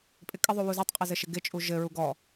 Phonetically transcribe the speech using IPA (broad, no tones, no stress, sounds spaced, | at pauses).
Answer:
pʼ ɪ kʼ ɪ ðˤ u w u z ɔ tˤ qʼ ɘ z ɘ ʃ ɪ ɡ ɪ t͡ʃʼ u ʒ ɘ ɹ u ɡ ɔ